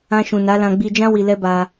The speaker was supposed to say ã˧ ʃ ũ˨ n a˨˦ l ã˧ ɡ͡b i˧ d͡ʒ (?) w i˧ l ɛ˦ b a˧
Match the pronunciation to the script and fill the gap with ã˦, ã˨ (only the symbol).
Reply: ã˦